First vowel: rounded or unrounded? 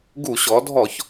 rounded